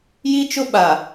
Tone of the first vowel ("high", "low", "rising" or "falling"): high